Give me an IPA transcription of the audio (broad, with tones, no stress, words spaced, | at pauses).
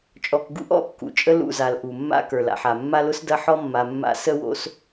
t͡ʃʼɔ˨k ɡṵ˦ʔ ɔ̰˦kːṵ˨ t͡ʃʼə˦lṵ˦˨za˨l ʔu˨mːa̰˦ kə˞˨la̰˨ħa˨ mːa˦lʊ˦sdɐ˦ ħɔ˦mːa˨ mːa̰˦ sə˦wo̰˦s